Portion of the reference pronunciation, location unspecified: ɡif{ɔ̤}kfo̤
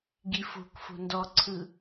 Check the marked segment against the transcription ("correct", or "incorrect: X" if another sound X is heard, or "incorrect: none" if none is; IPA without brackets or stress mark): incorrect: o̤